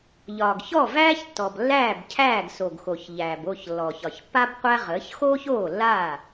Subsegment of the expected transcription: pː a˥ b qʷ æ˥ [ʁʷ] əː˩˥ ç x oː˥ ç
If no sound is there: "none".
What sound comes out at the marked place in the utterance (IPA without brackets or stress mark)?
ʁ